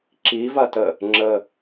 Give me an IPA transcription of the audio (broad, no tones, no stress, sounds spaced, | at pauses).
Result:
ǁ i v ɐ t ə | ŋ͡ǁ ə